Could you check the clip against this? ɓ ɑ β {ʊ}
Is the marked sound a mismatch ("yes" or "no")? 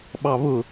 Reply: no